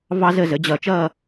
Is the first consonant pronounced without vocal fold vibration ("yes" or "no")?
no